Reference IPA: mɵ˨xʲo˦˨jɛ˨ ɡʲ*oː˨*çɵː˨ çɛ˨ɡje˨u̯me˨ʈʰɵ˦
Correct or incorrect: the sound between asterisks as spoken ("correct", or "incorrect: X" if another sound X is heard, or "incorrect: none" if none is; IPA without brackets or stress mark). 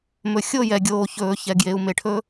correct